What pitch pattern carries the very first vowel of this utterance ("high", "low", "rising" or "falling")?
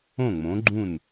falling